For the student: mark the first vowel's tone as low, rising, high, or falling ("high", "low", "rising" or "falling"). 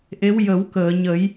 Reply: rising